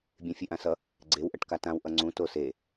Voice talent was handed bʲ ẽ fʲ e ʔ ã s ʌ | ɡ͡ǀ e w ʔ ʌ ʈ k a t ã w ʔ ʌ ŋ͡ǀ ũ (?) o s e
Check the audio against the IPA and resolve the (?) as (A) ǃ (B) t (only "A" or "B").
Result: B